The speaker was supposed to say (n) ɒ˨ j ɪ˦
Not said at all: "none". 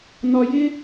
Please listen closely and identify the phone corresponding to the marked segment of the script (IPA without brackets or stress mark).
n